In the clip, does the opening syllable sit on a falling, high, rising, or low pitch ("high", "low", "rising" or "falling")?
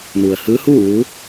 low